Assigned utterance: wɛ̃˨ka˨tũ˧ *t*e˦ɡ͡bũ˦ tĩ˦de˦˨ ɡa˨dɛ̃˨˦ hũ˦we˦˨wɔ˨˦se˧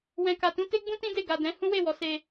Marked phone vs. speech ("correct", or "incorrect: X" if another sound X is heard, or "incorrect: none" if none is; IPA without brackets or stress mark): correct